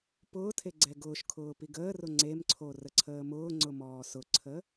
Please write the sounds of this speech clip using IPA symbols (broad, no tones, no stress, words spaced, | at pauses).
pʊːtʰe ɡ͡ǀɛɡʊːʃkʰʊː piɡəːrʊ ŋ͡ǀemǀʰo rəǀʰəːmʊːŋ͡ǀʊ mɔːsʊǀʰə